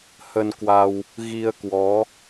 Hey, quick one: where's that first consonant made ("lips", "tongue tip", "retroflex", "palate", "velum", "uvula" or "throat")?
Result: throat